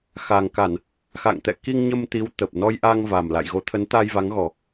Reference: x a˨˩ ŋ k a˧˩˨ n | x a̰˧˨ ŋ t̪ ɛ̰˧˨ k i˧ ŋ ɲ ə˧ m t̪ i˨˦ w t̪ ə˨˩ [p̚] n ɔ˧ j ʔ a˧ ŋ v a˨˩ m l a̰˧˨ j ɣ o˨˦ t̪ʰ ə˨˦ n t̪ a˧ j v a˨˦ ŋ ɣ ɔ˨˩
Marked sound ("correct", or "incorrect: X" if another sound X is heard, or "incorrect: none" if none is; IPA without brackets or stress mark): correct